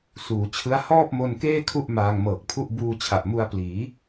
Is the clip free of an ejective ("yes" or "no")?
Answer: yes